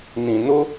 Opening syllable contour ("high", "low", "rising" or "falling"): low